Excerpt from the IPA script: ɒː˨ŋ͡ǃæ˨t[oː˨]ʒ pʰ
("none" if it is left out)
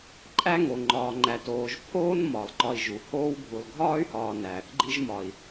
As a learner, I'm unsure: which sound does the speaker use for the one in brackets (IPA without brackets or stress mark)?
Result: oː˨